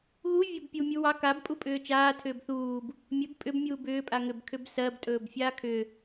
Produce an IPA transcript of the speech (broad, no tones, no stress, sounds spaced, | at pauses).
ɣ u vʲ a b pʲ u mʲ u w ɑ k a b pʼ u pʼ ʏː t͡ʃ aː tʰ ʏː b θ uː b | mʲ ɵ b pʼ ʏ b mʲ uː b ʏː pʼ a ŋ ʏ b kʰ ʏ b s ɜ b tʼ ɵː b fʲ aː kʰ ʏ